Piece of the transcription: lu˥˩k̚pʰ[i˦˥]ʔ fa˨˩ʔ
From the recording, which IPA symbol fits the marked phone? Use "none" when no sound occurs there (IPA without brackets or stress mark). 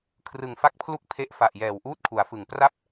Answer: e˦˥